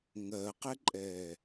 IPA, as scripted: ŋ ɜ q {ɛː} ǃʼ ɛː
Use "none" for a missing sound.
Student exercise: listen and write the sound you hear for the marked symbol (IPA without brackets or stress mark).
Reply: ɛ